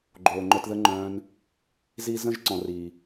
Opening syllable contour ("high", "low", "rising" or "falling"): low